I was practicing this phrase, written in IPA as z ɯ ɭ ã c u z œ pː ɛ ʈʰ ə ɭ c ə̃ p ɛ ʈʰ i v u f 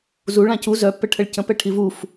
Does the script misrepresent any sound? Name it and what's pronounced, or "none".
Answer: ɯ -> u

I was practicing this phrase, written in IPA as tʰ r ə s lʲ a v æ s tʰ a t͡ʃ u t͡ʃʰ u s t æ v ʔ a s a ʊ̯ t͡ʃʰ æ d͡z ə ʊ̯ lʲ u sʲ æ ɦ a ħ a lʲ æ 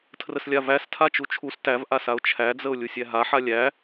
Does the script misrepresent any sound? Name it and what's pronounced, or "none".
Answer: none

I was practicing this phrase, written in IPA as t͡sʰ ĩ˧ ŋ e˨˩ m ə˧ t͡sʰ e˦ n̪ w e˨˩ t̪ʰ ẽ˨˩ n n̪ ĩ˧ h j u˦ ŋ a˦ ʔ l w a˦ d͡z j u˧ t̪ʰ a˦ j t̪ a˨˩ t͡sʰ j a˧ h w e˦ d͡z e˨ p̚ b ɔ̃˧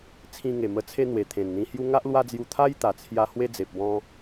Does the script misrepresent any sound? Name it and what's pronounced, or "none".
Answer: none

